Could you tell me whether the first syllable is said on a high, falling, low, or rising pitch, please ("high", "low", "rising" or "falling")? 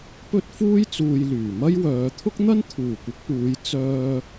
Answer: high